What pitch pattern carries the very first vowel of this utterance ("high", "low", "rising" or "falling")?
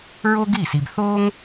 high